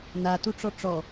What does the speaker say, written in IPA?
natuʈ͡ʂɔ ʈ͡ʂɔ

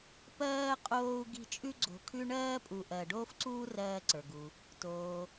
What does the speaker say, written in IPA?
pɜː˥qʼoː˦u̯ ɡi̤˦t͡ʃʼʉ˥ɡ͡ǀo̤˨kʰʉ˥ ɳɜː˥pʼu˨ʔɜ˨ ɖoː˥fǀuː˥ rɜː˦ǀə˞˩ɡu˩ | toː˩

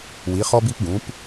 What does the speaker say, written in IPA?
wi˩˧χɔ˧bi˧pɡũ˩˧p

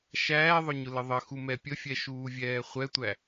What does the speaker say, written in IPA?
ʃæːðˤʊɲʊlə ðˤəxumɛ pʲəfʲɛʃuːvʲɛː χʷɛtʷæ

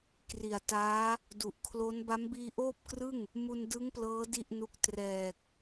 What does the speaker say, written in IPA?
kri˨˩a̯taː˦˥ | du˨˩ʔkʰlo˦˥n ba˦˥mbiː˧ʔoː˥˩p̚krɯ˥˩ŋ | mu˧ndɯ˦˥ŋplɤː˦˥ di˥˩ʔnu˦˥k̚ trɛː˨˩k̚

